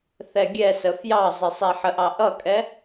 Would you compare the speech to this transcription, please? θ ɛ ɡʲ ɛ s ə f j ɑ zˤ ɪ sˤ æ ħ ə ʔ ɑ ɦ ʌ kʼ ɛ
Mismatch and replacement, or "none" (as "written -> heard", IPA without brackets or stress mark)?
ɦ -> ʔ